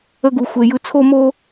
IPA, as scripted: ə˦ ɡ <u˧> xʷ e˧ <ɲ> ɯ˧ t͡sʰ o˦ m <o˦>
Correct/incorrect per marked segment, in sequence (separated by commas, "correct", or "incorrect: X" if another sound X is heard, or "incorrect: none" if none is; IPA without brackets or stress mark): correct, incorrect: j, correct